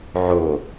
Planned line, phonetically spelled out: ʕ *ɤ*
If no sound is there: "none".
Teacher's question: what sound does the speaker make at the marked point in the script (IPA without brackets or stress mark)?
o